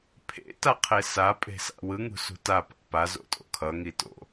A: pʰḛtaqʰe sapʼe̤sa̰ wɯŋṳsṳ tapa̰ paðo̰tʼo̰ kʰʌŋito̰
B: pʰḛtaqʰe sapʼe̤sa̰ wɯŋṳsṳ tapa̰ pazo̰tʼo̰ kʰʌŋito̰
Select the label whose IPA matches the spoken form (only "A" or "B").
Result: B